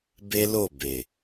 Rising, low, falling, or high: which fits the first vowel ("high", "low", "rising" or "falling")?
high